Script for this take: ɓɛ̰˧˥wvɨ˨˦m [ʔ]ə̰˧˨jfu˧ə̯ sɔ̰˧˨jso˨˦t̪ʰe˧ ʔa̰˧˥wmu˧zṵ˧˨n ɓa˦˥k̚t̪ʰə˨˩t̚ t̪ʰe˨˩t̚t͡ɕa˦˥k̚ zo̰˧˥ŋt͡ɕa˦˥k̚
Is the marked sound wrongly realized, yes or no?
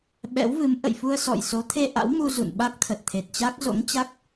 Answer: no